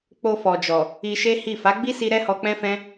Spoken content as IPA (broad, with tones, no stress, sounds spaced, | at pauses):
k͡p o˧ f ɔ˨ d͡ʒ ɔ˨ | i˧ ʃ e˦ h i˦˨ f a˨˦ ɡ͡b i˦ s i˧ ɾ ɛ˦ h ɔ˧ k͡p ɛ̃˦ f ɛ̃˦